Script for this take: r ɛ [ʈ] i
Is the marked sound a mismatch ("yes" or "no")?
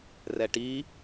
no